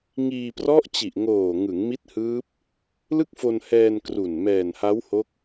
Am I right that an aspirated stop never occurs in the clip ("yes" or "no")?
yes